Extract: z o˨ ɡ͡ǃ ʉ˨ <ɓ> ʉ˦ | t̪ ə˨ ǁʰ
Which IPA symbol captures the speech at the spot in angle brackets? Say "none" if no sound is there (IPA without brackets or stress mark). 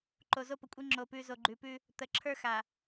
p